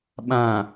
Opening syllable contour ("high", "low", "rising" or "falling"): low